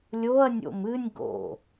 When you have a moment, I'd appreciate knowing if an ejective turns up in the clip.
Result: no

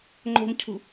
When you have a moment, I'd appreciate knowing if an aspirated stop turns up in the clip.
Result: yes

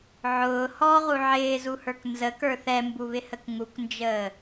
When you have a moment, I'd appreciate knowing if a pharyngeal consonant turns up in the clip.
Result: yes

